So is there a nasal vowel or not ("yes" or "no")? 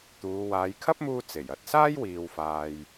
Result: no